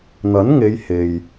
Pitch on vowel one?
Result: rising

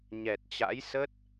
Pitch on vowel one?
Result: low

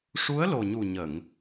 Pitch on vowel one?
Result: rising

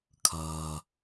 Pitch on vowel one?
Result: low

